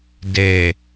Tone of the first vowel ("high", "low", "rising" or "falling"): low